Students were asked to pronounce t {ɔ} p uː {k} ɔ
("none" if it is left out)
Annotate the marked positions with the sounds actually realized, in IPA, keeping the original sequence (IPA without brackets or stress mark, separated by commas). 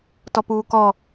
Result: ɔ, k